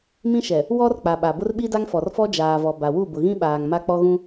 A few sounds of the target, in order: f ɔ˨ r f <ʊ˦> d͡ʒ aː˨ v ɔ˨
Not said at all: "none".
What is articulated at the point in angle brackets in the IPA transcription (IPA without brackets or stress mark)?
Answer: ɔ˦